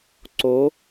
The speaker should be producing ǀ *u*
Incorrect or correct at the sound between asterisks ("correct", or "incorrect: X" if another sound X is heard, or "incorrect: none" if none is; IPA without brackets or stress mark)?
incorrect: o